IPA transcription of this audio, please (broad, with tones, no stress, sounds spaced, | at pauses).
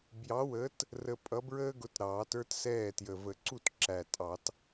b j ɑ˨˥ w əː˨˥ t | r ə˧ pʼ ʌ˨˥ b ɹ əː˥ ɡ ʊ˨˥ t ɾ ɑː˨˩˦ t ə˞˥ t s ɛː˥˩ t j ə˨˩ v ə˨˩˦ ǀ u˥˩ t ǁ æ˨˩ tʼ ɑ˨˩˦ t